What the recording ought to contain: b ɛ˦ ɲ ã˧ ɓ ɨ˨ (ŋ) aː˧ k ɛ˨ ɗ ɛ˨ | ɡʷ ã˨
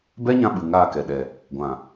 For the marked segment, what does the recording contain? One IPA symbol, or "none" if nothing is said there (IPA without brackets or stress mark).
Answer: ŋ